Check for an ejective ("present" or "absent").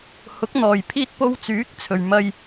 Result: absent